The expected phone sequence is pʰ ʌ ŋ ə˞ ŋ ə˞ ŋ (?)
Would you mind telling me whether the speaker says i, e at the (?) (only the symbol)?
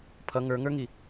i